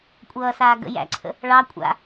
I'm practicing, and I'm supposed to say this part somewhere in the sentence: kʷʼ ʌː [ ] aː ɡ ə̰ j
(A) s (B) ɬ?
A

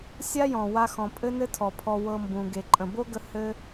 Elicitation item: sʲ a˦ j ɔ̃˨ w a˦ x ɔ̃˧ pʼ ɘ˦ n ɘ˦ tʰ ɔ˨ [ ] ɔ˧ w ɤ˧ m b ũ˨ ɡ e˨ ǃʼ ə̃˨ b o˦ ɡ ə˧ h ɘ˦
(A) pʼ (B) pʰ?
B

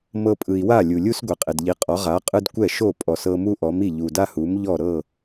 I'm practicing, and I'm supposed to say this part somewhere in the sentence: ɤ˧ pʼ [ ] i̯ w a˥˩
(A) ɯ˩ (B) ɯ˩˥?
A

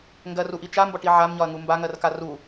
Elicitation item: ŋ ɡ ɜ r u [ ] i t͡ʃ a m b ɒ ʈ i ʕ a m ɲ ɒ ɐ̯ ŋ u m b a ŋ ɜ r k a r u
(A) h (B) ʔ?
B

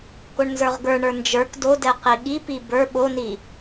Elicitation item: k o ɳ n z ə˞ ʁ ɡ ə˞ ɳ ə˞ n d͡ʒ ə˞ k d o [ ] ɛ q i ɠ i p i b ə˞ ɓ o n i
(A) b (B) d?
B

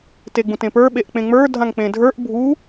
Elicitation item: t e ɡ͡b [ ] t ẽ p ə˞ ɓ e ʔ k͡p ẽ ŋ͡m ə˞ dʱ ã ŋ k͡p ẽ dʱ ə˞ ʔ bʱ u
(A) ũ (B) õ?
A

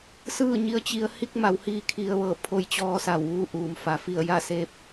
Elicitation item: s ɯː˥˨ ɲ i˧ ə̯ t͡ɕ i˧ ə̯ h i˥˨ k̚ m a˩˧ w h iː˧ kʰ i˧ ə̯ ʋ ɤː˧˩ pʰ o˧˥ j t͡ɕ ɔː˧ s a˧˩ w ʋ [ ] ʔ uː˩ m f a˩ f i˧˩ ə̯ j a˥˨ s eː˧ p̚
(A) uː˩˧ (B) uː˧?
B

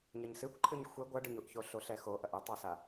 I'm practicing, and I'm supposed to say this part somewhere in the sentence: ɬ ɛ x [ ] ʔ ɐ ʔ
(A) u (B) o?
B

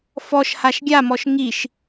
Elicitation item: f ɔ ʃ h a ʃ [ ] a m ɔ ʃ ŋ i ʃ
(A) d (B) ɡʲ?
B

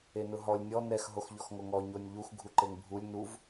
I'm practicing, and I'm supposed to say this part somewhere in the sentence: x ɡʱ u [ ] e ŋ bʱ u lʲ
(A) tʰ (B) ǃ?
B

